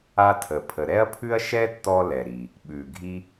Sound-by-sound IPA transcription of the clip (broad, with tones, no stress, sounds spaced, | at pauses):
a˧ tʰ ə˩ pʰ ə˩ ɾ ɛ˥ ɐ̯ pʰ ʉ˥ ɐ̯ ʃ ɛ˥ tː ɔ˧ l ɛ˩ ɾ i˩ | ɓ ʉ˩ ɡʱ i˧